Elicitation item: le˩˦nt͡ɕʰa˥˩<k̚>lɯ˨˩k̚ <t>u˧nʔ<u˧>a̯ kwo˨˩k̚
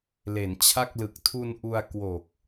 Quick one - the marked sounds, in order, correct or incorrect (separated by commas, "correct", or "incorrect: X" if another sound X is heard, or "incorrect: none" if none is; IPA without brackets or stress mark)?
correct, incorrect: tʰ, correct